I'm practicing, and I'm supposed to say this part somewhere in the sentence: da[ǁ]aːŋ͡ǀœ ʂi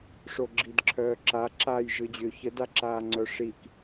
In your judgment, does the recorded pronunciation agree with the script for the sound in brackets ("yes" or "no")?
yes